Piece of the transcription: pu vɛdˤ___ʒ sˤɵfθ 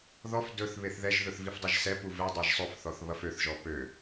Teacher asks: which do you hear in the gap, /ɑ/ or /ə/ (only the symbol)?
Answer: ɑ